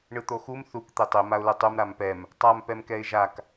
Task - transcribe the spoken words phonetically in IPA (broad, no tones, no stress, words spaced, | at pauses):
ɳɯt̪oxum θuk t̪etˤe maʊ̯lɯtˤum ɾampɛm | tˤam pɛmkɛɪ̯ʒak